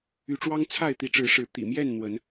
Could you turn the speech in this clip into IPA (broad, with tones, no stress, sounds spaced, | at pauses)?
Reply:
y˨˦ ʈ͡ʂ w ɑ˦ ŋ t͡sʰ a˥˨ ɪ̯ t̪ i˨˦ ʈ͡ʂ ɻ̩˨˦ ʂ ɻ̩˨˦ t̪ ḭ˨˩ m j ɛ˥˨ n n̪ w ə˨˦ n